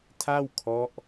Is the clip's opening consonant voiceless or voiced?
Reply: voiceless